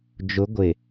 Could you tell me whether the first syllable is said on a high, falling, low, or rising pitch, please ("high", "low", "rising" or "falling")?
rising